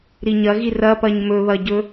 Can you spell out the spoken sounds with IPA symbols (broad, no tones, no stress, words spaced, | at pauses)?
ɾiɲɐɣi rɐpɐɲ mɵβɐɟɵ